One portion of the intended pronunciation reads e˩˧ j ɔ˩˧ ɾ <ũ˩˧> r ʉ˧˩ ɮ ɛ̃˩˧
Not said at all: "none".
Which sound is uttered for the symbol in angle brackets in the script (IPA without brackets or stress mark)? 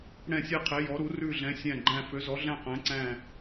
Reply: u˩˧